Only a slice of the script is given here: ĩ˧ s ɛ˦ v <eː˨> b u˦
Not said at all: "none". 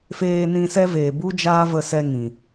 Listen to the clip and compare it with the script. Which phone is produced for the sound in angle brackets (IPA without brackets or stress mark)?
eː˨